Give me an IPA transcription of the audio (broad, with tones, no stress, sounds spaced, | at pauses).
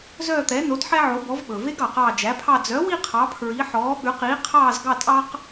z œː˦˨ t̪ ɛ˩˥ n o˩˥ d ħ ɛ˦ ʕ o˩˥ b ɔ˩˥ v ɓ ɵ˩ v e˦ ɡ ɑ˩ q ɑː˦˨ d͡ʒ æ˩˥ pʰ ɑ˦˨ d͡z œ˩˥ w i˦˨ qʰ ɑ˩˥ pʰ ɹ i˩˥ ħ ɔː˩˥ ɓ ʉ˩˥ q iː˩˥ qʰ ɑː˦˨ z ɡ ɑ˦˨ tʼ ɑ˦ q